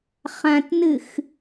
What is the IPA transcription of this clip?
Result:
χ ã t n ɨ x

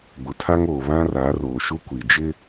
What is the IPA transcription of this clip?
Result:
ɡ͡b ʊ˨ tʰ a˦ ŋ oː˨ β ã˦ r aː˨˦ r oː˨ ʃ u˦ kʷ i˨ d͡ʒ ɪ˦

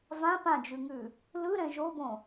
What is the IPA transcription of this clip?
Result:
v ã p ã d͡ʒ ʉ ŋ ʉ | l ɯ ɾ ɛ̃ ʒ o b õ

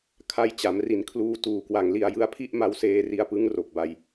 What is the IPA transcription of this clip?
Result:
kʰ a˧ j t͡ɕ a˩˦ m r i˩˦ n kʰ l uː˧ t uː˨˩ k w a˨˩ ŋ l i˧ a̯ j ɯ˦˥ a̯ pʰ i˥˩ ʔ m a˦˥ w s eː˧ r i˧ a̯ p ɯ˦˥ ŋ r o˨˩ k̚ b a˧ j

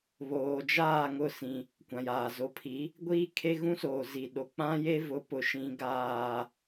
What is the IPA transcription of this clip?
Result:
β oː˨ d͡ʒ aː˦˨ ŋ ʊ˦˨ s ĩ˦ | kʷ ã˨ j aː˨ z o˨˦ pʰ i˨˦ | ɡʷ iː˦ kʰ e˦ ɣ ũ˦ s oː˨ z i˨ ɗ o˨ k͡p ã˦ j e˦ v ʊ˨˦ p ʊ˨ ʃ ĩ˦ ɡ aː˦

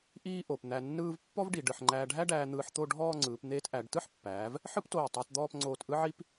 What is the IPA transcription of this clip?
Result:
ʔ iː˥ ʔ o˩˧ p n̪ æ˧ nː ɯː˥ v pː ɔ˥ v ɖ i˩˧ ɖ ɯ˩˧ ħ ŋ͡ǃ æː˧ ɖʱ æ˥ ɖ æː˧ n̪ ɯː˧ ħ t̪ o˥˧ ɖʱ ɔː˥˧ ŋ͡ǀ ɯː˩˧ p n̪ eː˧ t ʔ æ˩˧ ɖ t ɯ˥ ħ pː æː˩˧ v | ħ ɯ˥ p t oː˧˩ tˤ æ˧ t d̪ ɔː˥˧ p ŋ͡ǀ oː˧ t ʔ ɯ˥ ʕ i˥ p

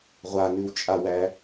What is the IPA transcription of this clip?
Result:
ʁʷ a n ʉ w t͡ʃʼ a w æ

